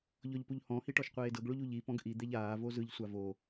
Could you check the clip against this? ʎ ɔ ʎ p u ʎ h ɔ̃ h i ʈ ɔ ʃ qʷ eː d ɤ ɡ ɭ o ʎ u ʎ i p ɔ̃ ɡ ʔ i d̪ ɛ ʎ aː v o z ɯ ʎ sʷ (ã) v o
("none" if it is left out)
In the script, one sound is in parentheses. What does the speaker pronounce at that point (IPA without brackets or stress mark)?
a